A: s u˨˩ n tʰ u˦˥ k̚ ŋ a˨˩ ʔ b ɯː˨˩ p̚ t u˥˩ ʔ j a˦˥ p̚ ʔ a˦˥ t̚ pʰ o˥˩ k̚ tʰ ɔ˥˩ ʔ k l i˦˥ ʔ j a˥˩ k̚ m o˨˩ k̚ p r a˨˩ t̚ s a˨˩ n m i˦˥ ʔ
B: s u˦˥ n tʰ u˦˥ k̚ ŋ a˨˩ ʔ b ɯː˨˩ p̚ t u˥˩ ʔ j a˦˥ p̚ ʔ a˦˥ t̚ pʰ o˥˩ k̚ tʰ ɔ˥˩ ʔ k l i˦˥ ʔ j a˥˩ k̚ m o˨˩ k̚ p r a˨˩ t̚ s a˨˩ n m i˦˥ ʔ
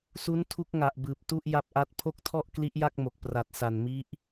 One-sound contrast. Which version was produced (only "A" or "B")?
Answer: B